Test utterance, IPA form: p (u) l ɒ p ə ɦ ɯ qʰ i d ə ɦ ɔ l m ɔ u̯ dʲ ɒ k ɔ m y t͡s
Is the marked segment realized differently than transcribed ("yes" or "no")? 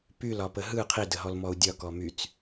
yes